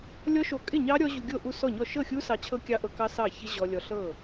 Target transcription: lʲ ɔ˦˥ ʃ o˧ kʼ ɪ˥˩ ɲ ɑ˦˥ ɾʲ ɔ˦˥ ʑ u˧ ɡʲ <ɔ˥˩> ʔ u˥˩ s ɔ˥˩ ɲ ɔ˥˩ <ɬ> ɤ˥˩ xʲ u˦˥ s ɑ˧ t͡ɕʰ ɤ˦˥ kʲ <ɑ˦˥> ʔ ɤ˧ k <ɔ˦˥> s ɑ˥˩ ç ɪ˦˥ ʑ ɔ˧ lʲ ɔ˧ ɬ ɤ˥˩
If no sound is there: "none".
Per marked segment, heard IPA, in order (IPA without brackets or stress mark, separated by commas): o˥˩, ʃ, ɑ˦˥, ɑ˦˥